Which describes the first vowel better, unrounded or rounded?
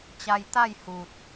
unrounded